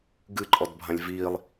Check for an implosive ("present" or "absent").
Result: absent